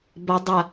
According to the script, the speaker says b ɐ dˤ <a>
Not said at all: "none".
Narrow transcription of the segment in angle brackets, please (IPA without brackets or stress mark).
ɐ